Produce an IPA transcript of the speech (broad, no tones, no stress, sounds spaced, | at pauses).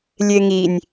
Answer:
lʲ e ŋ i nʲ